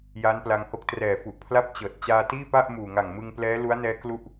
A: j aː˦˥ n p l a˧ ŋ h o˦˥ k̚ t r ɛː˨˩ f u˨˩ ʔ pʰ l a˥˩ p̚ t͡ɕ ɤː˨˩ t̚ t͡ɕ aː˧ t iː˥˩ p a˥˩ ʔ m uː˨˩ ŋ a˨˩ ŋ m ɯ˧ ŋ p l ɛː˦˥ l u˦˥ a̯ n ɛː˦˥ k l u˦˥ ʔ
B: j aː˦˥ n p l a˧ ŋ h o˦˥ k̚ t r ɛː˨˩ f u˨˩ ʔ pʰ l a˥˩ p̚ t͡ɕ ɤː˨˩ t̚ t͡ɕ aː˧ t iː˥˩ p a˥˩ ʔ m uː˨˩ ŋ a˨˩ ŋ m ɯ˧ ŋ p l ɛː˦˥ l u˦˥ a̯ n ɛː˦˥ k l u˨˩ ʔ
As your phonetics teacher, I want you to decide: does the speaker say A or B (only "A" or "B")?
A